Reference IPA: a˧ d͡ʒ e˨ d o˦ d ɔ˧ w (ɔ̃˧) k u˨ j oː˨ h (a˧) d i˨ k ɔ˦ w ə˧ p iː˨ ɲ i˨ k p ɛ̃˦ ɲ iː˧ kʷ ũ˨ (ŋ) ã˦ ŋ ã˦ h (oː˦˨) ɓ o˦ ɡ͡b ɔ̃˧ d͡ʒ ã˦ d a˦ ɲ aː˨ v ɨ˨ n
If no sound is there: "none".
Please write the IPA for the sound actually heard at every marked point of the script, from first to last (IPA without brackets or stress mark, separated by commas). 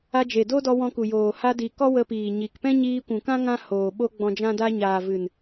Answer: ɔ̃˧, a˧, k, oː˨